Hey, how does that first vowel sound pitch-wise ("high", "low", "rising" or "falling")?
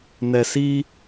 low